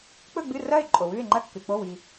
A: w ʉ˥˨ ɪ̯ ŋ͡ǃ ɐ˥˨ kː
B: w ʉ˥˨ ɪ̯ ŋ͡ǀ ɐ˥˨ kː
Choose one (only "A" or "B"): A